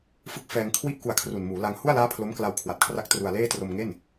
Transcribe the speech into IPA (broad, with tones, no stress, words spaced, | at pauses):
fɯ˦˥k̚fɛː˧ŋkʰwi˥˩ʔ ku˧a̯kʰru˨˩nmuː˩˦la˧ŋ hu˥˩a̯laː˦˥ pʰlo˦˥mkla˧wkʰwa˨˩t̚kʰra˦˥k̚ tru˧a̯leː˥˩ tro˧mŋe˥˩n